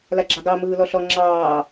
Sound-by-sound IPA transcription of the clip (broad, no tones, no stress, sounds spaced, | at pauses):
l a ɡ͡ǁ ɑ ɡ ɑ m ɯː l ɔ ɬ ɔ ŋ͡ǁ ɑː